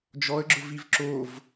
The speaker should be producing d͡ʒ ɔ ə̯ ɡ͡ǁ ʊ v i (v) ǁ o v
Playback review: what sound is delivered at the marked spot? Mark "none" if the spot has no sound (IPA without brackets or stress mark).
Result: v